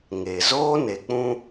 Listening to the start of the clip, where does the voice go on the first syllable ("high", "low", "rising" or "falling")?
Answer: low